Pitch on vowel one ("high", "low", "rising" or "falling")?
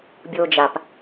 high